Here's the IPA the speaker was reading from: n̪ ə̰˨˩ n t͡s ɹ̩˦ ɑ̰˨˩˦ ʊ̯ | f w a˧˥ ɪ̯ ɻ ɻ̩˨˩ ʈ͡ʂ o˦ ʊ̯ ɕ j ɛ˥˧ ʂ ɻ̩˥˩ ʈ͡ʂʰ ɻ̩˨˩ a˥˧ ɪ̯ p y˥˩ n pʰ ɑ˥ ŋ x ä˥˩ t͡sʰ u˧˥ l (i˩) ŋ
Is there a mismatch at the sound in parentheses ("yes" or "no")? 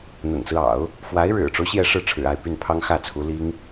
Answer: yes